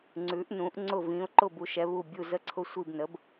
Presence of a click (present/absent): present